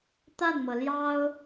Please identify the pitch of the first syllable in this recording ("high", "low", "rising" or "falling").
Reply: falling